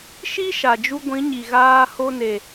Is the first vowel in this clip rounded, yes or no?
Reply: no